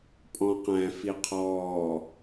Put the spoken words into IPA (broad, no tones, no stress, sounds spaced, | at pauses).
pʼ ɔ̃ q æ̃ f i qʰ ɔː